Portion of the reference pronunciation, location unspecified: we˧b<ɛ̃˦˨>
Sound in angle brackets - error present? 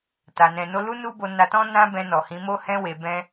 yes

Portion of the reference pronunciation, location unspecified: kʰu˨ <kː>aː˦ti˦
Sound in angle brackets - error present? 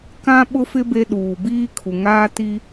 yes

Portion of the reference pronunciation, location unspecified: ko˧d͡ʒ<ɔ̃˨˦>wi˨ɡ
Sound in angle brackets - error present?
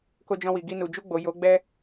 yes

